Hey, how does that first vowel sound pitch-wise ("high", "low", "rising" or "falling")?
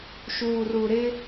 low